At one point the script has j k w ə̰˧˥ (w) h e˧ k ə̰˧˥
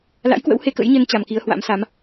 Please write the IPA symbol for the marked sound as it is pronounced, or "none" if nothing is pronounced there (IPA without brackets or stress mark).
w